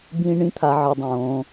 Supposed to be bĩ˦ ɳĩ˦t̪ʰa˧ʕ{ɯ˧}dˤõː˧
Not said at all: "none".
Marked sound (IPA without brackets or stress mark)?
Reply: ɯ˧